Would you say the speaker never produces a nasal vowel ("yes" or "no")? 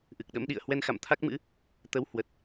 yes